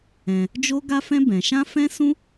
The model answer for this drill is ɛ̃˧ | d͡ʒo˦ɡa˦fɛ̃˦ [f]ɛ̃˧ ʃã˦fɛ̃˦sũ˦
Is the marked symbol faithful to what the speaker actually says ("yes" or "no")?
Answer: no